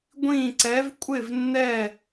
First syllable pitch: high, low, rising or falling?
falling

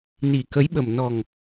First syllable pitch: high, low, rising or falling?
low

